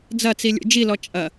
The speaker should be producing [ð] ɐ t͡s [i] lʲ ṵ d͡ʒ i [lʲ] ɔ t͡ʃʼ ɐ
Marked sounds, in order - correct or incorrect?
incorrect: d͡z, correct, incorrect: l

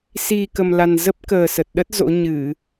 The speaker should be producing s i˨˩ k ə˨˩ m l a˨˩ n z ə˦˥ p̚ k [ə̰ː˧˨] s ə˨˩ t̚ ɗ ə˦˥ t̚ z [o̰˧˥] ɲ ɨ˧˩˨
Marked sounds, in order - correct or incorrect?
incorrect: əː˨˩, correct

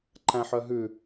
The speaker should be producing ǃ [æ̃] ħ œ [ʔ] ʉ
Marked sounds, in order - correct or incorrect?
correct, incorrect: ɦ

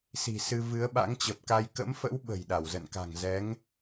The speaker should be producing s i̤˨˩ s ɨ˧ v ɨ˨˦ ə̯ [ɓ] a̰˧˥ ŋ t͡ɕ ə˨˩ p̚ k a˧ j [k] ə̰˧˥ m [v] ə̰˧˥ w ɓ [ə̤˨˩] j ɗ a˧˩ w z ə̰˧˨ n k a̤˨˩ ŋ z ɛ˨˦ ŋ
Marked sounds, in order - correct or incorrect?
correct, correct, incorrect: f, correct

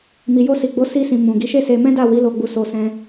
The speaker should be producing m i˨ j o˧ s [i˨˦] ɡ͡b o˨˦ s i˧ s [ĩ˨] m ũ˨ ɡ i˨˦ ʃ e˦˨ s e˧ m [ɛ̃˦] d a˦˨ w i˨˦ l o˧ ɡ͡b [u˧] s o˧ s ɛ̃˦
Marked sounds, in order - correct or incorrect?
incorrect: i˨, correct, correct, correct

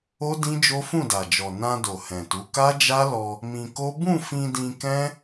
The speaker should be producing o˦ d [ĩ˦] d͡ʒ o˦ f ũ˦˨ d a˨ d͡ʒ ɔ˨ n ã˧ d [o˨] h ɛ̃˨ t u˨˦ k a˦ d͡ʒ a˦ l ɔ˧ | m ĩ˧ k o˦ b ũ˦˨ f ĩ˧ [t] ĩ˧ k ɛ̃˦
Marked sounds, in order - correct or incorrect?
correct, correct, incorrect: d

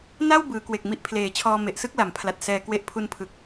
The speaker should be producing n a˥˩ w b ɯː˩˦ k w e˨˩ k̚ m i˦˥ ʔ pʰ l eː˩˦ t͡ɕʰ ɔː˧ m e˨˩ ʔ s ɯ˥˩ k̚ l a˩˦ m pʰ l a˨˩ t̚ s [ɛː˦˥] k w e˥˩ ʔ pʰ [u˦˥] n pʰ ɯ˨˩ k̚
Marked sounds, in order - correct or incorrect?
incorrect: ɛː˧, correct

